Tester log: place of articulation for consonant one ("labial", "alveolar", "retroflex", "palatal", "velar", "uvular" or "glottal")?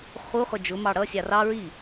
uvular